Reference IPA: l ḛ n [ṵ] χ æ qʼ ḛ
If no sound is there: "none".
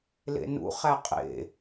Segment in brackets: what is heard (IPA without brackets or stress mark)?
ṵ